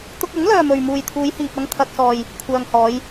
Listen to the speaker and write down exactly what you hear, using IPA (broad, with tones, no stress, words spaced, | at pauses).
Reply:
t̪ʊ˥k̚ ɐ˨˥ŋlœː˨ mɵ˨ɥmuː˨jt̪ʰuː˨˧jhiː˨p̚ ɐ˧ŋt̪ʰɐ˨k̚sɔː˨j | kʷʰœː˨ŋhɔː˨˧j